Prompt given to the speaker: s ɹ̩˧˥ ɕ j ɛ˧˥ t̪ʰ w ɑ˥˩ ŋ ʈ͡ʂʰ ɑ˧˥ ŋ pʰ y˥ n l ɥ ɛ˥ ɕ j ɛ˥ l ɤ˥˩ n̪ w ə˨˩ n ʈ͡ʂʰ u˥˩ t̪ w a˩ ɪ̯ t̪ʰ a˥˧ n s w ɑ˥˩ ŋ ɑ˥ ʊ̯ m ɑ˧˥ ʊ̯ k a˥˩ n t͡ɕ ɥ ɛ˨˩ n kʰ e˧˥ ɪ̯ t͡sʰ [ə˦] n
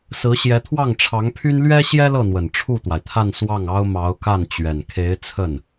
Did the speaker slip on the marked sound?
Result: yes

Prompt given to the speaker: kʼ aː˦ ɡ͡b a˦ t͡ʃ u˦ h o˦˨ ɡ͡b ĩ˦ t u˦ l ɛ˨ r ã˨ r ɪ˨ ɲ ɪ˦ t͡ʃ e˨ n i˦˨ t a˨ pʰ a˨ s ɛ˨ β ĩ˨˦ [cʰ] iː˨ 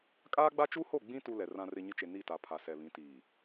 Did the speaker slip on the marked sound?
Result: yes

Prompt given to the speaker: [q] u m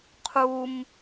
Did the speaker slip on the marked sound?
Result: yes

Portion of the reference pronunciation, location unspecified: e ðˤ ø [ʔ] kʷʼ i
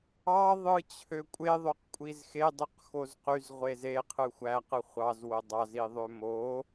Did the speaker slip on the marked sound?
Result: yes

